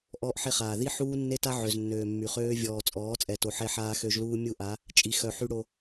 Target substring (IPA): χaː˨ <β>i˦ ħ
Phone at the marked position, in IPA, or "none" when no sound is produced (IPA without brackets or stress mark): ð